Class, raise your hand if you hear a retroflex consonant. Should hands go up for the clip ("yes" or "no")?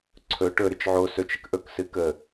yes